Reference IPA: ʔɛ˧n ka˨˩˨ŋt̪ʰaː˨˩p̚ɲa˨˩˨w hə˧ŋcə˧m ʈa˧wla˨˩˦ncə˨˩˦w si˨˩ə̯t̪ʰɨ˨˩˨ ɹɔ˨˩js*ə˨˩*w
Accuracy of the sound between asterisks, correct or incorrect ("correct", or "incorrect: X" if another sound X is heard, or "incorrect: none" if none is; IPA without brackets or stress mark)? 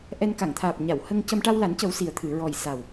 incorrect: a˨˩